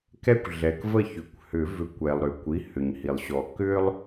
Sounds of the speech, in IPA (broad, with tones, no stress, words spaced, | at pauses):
kɛ˥kʷɮɛ˩k və˥˩ çʏ˩˧˩kʷhʏ˨˩˦vʏ˨˩˦kʷ ɛ˩lˠɾʏ˩kʷi˩˧˩ hʏ˩ɲhi˩lˠɕɔ˨˩˦ kʏ˥lˠ